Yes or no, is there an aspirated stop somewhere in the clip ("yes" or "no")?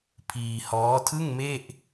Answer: yes